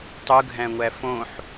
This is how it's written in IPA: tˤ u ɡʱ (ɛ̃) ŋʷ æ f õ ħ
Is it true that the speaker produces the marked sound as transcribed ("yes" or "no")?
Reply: no